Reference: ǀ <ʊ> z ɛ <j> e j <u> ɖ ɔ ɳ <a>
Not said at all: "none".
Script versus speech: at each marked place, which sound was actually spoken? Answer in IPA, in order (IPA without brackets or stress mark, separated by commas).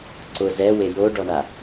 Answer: ʊ, w, o, a